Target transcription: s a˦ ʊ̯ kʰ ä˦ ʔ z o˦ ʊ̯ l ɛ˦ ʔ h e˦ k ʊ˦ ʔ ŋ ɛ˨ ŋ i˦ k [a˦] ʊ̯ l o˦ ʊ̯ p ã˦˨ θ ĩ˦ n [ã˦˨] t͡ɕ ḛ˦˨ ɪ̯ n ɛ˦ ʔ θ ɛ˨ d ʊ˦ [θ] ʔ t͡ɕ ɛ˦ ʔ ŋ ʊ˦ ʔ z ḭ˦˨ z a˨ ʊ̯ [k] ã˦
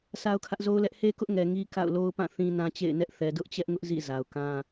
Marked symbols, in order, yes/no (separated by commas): no, no, no, yes